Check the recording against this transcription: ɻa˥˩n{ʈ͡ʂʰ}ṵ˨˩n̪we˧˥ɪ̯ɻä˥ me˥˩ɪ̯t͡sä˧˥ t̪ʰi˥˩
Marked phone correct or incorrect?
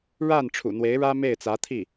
correct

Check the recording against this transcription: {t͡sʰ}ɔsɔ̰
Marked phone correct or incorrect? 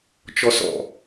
incorrect: t͡ʃ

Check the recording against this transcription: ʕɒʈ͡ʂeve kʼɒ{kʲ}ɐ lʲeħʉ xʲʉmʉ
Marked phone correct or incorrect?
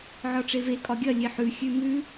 incorrect: ɡʲ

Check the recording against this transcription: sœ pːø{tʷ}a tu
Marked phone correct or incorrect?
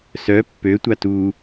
correct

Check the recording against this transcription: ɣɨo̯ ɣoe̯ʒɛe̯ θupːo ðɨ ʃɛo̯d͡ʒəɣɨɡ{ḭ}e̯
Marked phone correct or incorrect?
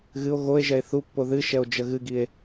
incorrect: i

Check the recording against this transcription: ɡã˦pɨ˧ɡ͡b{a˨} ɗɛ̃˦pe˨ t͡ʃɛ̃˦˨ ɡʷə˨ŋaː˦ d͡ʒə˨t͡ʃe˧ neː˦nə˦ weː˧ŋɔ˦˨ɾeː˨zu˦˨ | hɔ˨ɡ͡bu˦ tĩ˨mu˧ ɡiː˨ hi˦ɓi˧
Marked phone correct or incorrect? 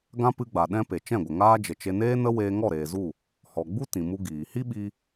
correct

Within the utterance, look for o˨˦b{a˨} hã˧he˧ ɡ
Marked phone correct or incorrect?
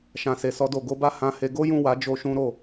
incorrect: a˦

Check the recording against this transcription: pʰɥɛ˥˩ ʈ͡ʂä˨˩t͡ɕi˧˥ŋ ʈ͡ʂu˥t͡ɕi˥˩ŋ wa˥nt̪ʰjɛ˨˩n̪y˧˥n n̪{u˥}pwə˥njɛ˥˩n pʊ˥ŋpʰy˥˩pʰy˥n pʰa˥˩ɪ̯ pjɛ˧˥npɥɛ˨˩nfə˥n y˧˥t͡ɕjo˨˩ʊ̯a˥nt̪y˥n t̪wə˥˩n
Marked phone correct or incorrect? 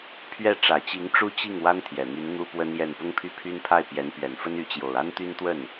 correct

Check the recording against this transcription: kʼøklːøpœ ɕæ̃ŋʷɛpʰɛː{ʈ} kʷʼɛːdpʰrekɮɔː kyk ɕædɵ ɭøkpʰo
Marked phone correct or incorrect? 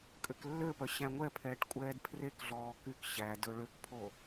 correct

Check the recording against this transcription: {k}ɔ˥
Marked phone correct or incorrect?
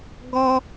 incorrect: ɡ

